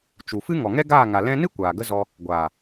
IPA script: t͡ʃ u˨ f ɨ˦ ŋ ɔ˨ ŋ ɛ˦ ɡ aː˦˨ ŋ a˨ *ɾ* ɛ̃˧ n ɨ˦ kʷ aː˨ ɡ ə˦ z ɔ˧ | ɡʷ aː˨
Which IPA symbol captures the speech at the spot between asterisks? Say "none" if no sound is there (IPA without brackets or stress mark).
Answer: l